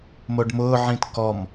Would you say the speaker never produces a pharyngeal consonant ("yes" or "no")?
no